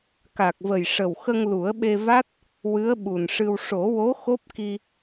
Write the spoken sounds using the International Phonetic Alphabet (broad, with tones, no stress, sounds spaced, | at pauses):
k a˨˩ k̚ v ə˨˩ j ʂ ə˨˩ w x ə˧ ŋ l u˨˩˦ ə̯ ɓ e˧ v a˦˥ t̚ | w ɨ˧˥ ə̯ ɓ u˨˩ n ʂ ɨ˧ w ʂ o˨˩˦ w o˧˥ x o˦˥ p̚ k i˧